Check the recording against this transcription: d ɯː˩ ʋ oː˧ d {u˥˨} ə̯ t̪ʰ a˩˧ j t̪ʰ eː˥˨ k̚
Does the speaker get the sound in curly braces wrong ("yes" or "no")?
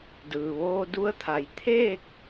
yes